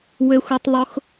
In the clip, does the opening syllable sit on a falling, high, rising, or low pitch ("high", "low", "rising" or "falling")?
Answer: high